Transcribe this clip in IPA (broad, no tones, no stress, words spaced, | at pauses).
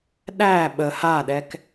ɗæ ɓə haɗɛk